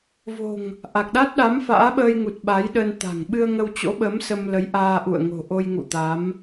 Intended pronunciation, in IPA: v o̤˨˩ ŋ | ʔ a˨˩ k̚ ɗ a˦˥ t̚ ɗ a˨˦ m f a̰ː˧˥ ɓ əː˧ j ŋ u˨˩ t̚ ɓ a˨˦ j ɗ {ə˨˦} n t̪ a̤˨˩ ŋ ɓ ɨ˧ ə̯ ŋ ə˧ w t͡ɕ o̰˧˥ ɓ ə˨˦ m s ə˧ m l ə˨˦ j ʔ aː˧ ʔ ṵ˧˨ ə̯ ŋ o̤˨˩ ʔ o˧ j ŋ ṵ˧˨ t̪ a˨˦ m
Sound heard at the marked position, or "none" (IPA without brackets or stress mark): ə˧